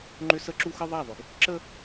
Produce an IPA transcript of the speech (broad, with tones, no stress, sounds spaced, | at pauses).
ŋ͡ǃ ʏ˦ s ə˦ ǁ u˦ x ə˦ ðˤ a˦˨ ðˤ ʏ˨ ɡ | ǁ ə˦